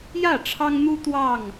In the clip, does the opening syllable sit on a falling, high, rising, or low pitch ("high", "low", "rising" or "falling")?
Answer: falling